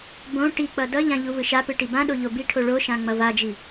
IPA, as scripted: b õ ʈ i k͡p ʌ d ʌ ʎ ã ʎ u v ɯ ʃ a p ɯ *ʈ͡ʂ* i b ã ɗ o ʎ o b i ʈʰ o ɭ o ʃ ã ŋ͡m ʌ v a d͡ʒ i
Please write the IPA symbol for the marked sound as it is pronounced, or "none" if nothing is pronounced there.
ʈ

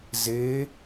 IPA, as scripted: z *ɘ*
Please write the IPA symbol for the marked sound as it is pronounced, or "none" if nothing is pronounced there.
e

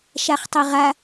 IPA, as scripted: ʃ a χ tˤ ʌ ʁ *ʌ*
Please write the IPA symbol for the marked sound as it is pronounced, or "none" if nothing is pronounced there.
a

